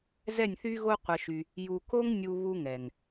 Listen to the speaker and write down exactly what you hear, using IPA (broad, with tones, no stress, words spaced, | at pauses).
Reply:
zɛ˦˨nʲθy˦ɣo˦ qʷə˧ʃy˧ | ju˨ko˦ŋ nʲu˧ βu˦ŋɛ˨ŋ